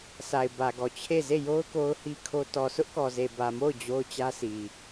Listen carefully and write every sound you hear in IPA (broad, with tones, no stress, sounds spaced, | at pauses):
sʰ a˨ ɪ̯ b ä˨ ɡ ɔ˨ t͡ɕʰ e˦˨ z e˦˨ j o˦ ʊ̯ k o˦ ʊ̯ h i˦ kʰ o˦ t ɔ˨ sʰ ʊ˦ ʔ k ɔ˨ z e˨ b ä˨ m o˦˨ ʊ̯ d͡ʑ o˦ ʊ̯ t͡ɕ ä˦ s i˨